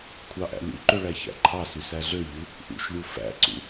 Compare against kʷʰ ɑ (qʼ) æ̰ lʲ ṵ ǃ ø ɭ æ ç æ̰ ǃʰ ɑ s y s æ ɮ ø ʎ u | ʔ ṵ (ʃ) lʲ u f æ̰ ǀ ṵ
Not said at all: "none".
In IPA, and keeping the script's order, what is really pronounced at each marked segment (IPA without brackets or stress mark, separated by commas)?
ʔ, ʃ